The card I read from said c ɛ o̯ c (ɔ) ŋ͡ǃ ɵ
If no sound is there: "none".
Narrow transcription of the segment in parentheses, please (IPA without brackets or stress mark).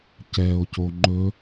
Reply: o